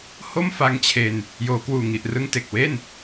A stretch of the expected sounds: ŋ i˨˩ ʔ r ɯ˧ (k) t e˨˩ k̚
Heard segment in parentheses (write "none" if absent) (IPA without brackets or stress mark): ŋ